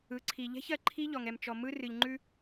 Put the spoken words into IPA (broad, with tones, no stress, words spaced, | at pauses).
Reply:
ɯ˨˦ǀʰi˨ ʎɛ̤˦çɜ˨ǃʰi˦ ʎɔ˨ŋɛ˨m t͡ʃɔ˨ mɯ˦rɨ˨ʎŋ͡ǃʉ˦